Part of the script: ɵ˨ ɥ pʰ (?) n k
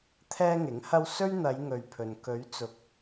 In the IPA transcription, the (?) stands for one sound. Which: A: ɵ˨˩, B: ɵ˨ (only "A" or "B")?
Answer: B